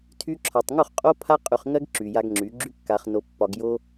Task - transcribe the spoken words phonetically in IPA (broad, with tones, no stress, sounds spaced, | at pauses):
tʰ y˧ ǁʰ ɒ˨ tˤ ŋ u˦˨ χ qʼ o˦ pʰ a˦ qʼ y˨ χ ŋ ɜ˦ ɡ ǁ y˨ j a˧ ɡ ŋ͡ǁ y˨˦ ɡ͡ǁ y˦ kː a˧ χ n o˧ pː ɒ˧ ɡ j o˦